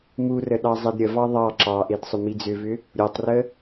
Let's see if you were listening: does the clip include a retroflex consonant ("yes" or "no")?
no